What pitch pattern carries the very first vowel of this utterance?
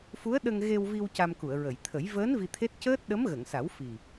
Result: rising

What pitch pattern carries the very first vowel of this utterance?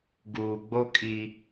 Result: low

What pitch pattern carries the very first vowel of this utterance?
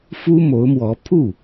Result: high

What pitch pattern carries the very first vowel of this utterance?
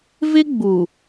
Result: high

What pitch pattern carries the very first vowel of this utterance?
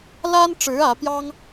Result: high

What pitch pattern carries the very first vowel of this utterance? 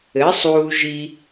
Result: rising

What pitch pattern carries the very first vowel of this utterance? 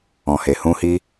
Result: low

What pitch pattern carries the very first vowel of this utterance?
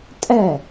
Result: falling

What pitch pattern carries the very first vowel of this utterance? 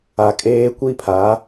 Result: low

